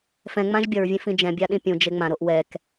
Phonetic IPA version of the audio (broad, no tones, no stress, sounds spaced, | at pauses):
f ɛ̃ ŋ͡m ã ʒ bʲ ʌ ɹ vʲ ẽ f ĩ d͡ʒ ɛ̃ bʲ a ɗ ĩ pʲ ũ d͡ʒ e ŋ͡m ã ɾ o ʔ w ɛ k